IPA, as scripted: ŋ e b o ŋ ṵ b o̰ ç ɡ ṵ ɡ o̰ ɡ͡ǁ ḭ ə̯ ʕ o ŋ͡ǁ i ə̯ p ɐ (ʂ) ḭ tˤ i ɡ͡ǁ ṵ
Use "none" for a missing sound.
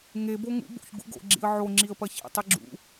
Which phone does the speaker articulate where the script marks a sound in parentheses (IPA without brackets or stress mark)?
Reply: ç